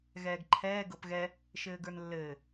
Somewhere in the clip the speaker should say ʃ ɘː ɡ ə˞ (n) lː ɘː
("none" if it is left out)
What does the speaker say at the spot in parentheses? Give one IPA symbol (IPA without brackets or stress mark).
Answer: n